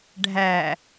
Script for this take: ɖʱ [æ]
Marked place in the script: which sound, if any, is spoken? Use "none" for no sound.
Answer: æ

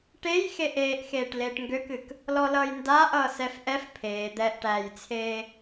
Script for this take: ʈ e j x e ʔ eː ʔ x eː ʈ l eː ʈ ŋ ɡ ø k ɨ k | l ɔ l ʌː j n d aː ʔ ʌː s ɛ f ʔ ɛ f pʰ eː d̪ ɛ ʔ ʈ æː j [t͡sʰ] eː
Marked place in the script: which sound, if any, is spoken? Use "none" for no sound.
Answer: t͡sʰ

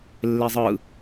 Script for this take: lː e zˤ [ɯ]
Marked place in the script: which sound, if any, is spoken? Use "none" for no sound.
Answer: ɯ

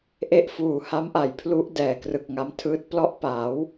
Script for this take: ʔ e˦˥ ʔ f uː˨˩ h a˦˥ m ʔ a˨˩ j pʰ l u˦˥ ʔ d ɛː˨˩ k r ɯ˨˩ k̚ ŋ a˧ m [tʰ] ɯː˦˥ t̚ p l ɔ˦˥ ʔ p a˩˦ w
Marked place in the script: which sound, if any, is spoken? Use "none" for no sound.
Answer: tʰ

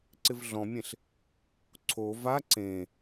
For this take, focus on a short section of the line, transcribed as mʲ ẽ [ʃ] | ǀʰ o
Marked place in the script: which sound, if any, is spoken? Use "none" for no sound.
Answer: ɬ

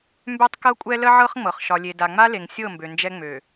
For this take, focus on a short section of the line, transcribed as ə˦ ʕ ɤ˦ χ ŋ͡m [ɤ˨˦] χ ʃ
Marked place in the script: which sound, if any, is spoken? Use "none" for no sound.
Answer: ɤ˨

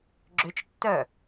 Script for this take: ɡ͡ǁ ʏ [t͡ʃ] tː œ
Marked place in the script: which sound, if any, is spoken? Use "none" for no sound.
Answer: t͡ʃ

